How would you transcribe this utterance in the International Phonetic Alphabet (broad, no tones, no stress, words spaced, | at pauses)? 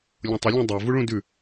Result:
lʲõtˤə lʲũdˤɜ vuɭũdʉ